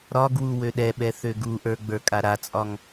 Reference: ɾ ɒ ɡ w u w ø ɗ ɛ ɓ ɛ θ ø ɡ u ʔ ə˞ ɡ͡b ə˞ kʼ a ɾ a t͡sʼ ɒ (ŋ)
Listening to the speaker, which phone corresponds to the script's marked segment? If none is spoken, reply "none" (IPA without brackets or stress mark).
ŋ